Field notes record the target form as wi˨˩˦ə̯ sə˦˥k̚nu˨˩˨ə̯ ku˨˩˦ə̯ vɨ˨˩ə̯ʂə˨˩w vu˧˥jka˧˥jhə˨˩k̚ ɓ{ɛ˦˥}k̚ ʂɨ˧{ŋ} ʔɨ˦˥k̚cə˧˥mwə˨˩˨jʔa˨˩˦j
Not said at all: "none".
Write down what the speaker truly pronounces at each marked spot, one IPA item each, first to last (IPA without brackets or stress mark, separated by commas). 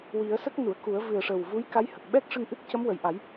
ɛ˦˥, ŋ